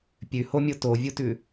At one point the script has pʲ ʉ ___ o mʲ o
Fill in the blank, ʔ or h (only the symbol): h